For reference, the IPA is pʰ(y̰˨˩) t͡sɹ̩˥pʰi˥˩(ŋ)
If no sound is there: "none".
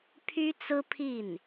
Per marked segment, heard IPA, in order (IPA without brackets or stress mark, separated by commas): y˥, n